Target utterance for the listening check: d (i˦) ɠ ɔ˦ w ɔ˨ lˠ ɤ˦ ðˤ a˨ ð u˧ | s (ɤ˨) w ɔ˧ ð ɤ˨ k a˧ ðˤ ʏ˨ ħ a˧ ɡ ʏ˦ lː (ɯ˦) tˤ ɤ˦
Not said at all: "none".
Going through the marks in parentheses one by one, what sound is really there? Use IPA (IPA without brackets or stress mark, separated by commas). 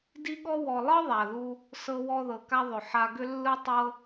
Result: i˦, ɤ˧, ɯ˦